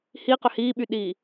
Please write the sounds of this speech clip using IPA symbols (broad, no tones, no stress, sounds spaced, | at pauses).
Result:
h i q ʏ h iː ɓ y ɗ iː